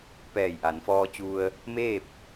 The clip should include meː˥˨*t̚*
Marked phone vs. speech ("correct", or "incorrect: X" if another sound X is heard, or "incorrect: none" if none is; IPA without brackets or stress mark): incorrect: p̚